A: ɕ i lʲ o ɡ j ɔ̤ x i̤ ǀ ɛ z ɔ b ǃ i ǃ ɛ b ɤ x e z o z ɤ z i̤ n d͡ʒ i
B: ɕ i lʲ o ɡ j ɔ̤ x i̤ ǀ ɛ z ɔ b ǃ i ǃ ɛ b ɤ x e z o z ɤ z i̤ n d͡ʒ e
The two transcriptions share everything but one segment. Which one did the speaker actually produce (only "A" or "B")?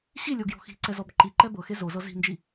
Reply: A